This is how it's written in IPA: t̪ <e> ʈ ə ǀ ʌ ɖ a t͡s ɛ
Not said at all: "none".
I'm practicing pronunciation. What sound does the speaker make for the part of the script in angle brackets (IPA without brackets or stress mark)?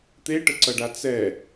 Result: e